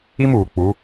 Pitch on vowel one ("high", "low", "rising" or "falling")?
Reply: high